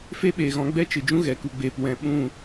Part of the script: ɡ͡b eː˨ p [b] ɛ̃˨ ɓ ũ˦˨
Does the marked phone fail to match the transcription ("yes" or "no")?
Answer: yes